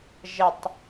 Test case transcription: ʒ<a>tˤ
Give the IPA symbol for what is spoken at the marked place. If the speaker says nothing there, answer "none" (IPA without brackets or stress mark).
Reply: ə